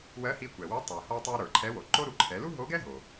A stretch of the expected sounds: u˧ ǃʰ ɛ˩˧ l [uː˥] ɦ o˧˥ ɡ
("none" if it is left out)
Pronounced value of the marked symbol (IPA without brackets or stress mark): u˥